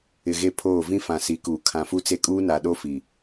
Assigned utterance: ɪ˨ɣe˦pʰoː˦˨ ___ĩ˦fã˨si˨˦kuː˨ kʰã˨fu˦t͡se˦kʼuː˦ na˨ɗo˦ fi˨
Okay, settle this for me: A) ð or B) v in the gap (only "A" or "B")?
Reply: B